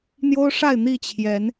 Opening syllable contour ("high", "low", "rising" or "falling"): high